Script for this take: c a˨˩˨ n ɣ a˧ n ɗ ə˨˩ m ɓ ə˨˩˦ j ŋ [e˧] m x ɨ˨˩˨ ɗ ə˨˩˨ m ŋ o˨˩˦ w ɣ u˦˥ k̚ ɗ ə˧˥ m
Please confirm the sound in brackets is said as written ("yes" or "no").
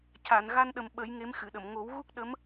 no